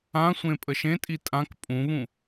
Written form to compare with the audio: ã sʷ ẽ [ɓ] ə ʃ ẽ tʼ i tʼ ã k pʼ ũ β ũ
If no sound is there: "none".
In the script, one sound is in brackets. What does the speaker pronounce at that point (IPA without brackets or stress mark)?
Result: pʼ